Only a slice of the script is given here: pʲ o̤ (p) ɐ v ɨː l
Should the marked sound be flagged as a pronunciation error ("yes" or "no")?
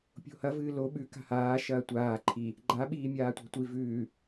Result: yes